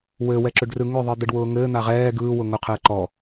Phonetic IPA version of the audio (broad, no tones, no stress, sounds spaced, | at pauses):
w ɘː w ɛ ǁ ʏ ɖ r ɯ ŋ ʏ ðˤ ɯ d̪ ɘ ɖ w ʊː ŋ ɘː n̪ a ʁ ɛː ɡ ɯː w ʊ ŋ ʊ qʰ ɘː ǃ ɔ